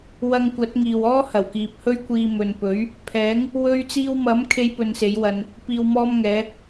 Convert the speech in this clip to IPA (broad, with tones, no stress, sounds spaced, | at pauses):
w ɐ˧ ŋ kʷ ɐ˨˥ t̚ ŋ iː˨ w ɔː˥ h ɐ˨˩ w k iː˨ p̚ h ɵ˥ ɥ kʷ iː˧ m ɵ˨ n p ɵ˨˥ ɥ | pʰ ɛː˨˥ ŋ | w ɵ˧ ɥ t͡s iː˧ w m ɐ˨˥ m kʰ e˥ j p ɵ˧ n s e˨˥ j w ɐ˧ n | p iː˧ w m ɔː˥ m ŋ ɛː˨˥